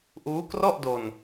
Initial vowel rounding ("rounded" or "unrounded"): rounded